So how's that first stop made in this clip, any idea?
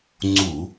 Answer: click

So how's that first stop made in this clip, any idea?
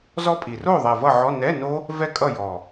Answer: ejective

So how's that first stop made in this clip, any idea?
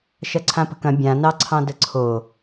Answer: click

